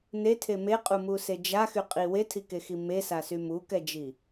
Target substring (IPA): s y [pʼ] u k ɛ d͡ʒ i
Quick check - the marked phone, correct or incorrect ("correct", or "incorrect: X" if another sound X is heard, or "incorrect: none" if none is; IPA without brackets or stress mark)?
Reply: incorrect: m